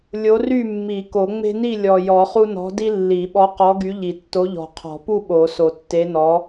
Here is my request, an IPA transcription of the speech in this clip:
lʲ o˨˥ r y˥˨ mː i˨˩˦ k o˨˩˦ ŋ͡m e̤˦ n i˥˨ lʲ ɔ˨˩ j ɔ˨˩˦ χ u˦ n ɔ̤˨˥ d i˦ lː i˨˩˦ ɓ ɔ˨˥ q ɔ˨˥ ɡ y˨˥ ʎ i˨˩ tː o˨˥ ʎ ɔ̤˨˩ qʰ ɔ̤˨˩˦ p u˥˨ ɓ o˨˩˦ s o˨˩˦ tː e˨˥ n ɔ˨˥

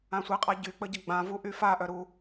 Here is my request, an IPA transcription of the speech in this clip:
ã sʷ i qʼ a ɟ y k͡p ə ɟ ə ɡ͡b ã v u ʔ y f a ʔ œ ɾ u

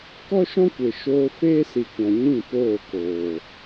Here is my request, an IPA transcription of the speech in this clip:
k ɔ˦ ʃ ɔ̃˦ kʷ e˨ ʃ oː˧ f eː˦ s i˨ kʷ ã˨ ɲ ĩ˦˨ p oː˦˨ k oː˨

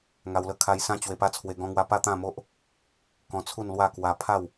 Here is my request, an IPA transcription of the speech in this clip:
ŋ a˧ w l ə˦ kʰ a˧ j s ã˦ t͡ɕ w e˧ p a˦ t͡sʰ w e˧ ɡ ɔ̃˦ ŋ w a˦ p a˥˧ t̪ ã˥˧ m o˦ ʔ | k ɔ̃˧ t͡sʰ u˥˧ n l w a˥˧ k w a˧ pʰ a˥˧ w

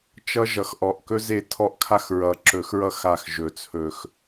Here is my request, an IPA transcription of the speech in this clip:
t͡ʃ ʌ˦ ʒ ʌ˨˩˦ x ʔ ɔ˨˩ ʔ k ɵ˦ z e˦˨ tʰ ɔ˦ ʔ kʰ a˦ x ɹ ʌ˨˩ ǁ ɵ˨˩˦ x ɹ ʌ˦˨ x a˦˨ x ʒ ɵ˨˩ t͡sʰ ɵ˨˩ x

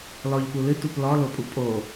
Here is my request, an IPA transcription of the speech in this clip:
l ɔ ʎ p u l ɨ t u p l ɔ l o pʼ u pʼ o

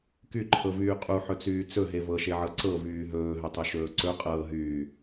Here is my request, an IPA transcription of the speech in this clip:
k y ǃʰ ɤ v yː qʼ u ħ ɵ t͡s yː t͡s ɵ ɦ e v ɤ ʃ e ʕ ɤ ǀ ɤ v yː ɦ ɵː ɦ ɵ tˤ ɵ ʃ ɵː ǀ ɵ qʼ ɤː ɦ yː

